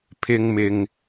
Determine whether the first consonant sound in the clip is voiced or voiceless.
voiceless